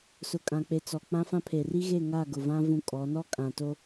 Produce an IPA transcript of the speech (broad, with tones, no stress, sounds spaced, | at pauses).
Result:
s ʊ˨ kʼ ã˨ k͡p e˨ t͡s ɔ˨ k͡p ã˦ f ã˦ pʰ e˨ r i˦ ɣ e˦˨ ŋ a˦˨ ɡ ʊ˨ v ã˦ v ũ˦ kʼ ɔ˨˦ n ɔ˦ kʼ ã˨ t o˦